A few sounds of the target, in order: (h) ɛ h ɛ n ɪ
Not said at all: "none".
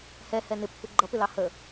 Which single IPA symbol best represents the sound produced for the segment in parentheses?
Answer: h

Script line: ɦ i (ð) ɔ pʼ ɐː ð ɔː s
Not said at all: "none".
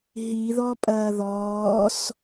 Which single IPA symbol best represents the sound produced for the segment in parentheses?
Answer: ð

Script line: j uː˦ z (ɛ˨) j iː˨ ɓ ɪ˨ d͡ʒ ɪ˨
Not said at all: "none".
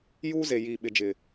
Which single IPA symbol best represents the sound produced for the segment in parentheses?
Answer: e˨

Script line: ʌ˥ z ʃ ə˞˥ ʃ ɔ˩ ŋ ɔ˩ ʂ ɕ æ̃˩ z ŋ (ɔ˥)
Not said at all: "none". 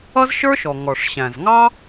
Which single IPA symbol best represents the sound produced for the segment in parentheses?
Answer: ɑ˥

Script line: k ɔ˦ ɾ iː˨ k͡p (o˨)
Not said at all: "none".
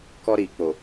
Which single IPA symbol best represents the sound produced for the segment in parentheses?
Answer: o˨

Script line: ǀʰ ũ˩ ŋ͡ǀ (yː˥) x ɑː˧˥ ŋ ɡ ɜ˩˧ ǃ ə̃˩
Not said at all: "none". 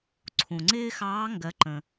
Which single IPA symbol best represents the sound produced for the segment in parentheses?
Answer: ɪː˥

